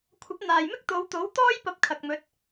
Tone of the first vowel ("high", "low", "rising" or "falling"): rising